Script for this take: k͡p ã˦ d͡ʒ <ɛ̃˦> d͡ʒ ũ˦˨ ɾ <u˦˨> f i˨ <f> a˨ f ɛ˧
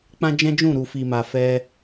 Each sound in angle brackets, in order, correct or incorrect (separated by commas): correct, incorrect, incorrect